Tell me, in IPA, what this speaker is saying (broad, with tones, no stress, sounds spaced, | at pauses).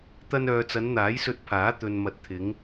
t̪ ɐ˧ n œː˨ t͡s ɐ˨˧ n n̪ aː˨˥ j s ɵ˧ t̚ pʰ aː˨˥ t̪ ɵ˨ n m ɐ˨˥ t̚ t̪ʰ ɪ˨˧ ŋ